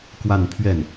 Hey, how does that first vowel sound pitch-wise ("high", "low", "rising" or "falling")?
falling